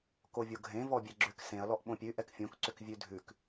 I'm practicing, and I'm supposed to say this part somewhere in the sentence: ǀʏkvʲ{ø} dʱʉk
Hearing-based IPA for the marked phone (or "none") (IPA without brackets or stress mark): ʉ